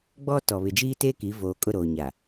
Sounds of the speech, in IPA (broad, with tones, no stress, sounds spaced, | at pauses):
ɡ͡b ɔ˦ t ɔ˨ β ɪ˨ d͡ʒ iː˦ t eː˦ k i˨˦ v oː˨ kʼ ʊ˦˨ ɾ oː˨ ɲ a˨